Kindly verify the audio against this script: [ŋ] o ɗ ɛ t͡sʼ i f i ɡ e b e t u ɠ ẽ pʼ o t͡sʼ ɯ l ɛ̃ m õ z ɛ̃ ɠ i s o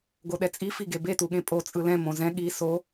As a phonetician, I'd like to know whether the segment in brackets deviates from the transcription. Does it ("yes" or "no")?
yes